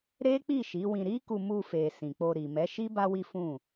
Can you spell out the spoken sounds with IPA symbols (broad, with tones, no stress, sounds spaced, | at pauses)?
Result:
ɾ e˦ k͡p i˦˨ ʃ i˨˦ w ĩ˧ ɾ i˦ k u˧ m u˧ f e˨ s ĩ˨ k͡p o˧ ɾ i˨ m ɛ˨˦ ʃ i˦ b a˦ w i˦ f ũ˦˨